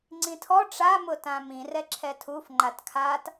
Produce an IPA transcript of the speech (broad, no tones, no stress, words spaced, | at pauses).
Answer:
ŋ͡ǀĩtʰɔ ʈ͡ʂamʊ tãmĩ rɛǁʰɛtʰuf ŋ͡ǃatkʰat